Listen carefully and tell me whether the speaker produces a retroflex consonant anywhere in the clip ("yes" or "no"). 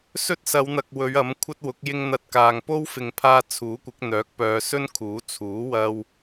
no